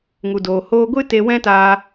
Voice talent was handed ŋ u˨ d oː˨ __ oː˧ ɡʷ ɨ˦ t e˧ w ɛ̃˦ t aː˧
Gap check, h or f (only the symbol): h